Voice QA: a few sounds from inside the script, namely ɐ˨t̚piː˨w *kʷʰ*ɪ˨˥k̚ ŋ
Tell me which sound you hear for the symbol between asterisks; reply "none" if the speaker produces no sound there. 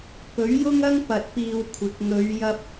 kʷʰ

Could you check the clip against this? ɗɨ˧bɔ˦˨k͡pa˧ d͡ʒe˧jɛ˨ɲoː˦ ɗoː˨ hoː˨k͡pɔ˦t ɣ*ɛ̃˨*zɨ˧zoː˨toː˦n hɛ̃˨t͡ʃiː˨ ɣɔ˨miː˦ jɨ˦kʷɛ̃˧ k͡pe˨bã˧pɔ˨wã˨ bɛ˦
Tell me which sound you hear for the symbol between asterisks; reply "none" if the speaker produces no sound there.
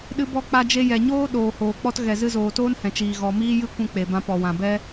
ɛ˨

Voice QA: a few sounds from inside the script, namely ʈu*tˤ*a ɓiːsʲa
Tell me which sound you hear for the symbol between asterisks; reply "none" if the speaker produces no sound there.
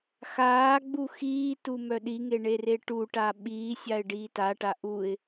ʈ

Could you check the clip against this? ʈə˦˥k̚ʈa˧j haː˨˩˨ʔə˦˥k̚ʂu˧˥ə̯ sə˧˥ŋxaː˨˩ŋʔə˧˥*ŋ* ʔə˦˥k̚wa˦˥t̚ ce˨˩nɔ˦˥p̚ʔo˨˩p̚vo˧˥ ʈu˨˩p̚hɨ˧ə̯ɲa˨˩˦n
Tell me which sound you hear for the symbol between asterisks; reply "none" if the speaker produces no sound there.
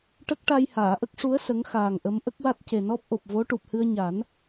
m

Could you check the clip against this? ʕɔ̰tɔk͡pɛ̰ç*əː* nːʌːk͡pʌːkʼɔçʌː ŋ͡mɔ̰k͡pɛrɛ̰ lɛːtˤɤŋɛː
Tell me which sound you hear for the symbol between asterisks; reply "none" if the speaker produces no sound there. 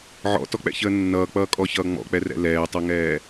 əː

